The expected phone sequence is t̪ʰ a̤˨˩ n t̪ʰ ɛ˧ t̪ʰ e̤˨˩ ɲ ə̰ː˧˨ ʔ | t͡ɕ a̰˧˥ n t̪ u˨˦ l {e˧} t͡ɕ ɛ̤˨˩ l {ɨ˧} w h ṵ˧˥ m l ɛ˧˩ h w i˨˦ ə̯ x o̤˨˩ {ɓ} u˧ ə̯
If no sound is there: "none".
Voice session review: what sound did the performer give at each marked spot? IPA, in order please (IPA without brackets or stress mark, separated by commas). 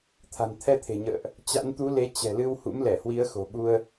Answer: e˨˦, ɨ˧, ɓ